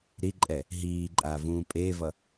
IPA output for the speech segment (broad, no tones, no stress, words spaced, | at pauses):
ɾiǃʼɛ | ɦiːǃʼaːvũː pʼeːvʌ